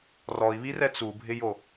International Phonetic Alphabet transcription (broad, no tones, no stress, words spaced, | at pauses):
rɔi̯βirɛ t͡subʱɪjo